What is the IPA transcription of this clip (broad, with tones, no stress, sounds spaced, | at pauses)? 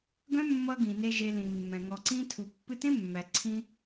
ɡ œ̃˦ mː ʌ˧ ɡ ĩ˨ n e˧ ʒ e˧ l ĩ˨ mː ɛ̃˨ ŋ ɔ˨ ǀ ĩ˧ tʰ u˨ pː ɨ˧ t ẽ˦ mː æ˨ ǀʰ ĩ˧